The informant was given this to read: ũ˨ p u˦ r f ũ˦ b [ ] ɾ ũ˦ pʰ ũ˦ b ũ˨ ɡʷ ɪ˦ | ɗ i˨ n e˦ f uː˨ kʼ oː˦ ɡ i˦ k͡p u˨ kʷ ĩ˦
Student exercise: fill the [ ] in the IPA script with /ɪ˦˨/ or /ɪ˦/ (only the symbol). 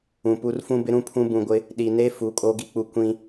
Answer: ɪ˦